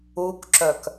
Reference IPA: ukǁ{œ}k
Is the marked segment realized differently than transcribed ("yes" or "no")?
no